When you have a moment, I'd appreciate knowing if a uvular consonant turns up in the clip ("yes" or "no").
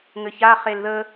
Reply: yes